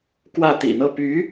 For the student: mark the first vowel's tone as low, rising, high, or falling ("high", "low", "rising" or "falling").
falling